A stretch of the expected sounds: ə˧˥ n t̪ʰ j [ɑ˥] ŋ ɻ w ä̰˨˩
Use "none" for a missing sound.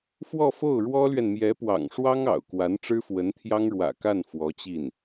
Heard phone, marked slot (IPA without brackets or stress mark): ɑ˥